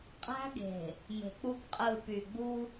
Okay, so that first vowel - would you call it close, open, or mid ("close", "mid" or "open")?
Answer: open